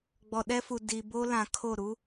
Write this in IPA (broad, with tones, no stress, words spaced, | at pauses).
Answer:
ɡ͡bɔ˨ɗɛ˦fu˨ di˨bo˦lã˨ kʰo˦˨ɾu˦